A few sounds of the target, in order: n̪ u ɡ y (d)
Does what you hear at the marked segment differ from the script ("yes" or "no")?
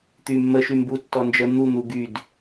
no